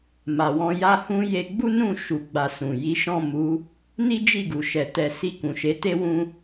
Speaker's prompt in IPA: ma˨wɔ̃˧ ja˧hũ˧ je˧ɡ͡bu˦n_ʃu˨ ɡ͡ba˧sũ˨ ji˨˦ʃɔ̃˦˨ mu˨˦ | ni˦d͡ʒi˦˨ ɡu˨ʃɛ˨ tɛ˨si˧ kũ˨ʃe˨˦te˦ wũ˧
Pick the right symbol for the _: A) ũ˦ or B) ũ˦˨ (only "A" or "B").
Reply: B